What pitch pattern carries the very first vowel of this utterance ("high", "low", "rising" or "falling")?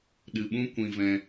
low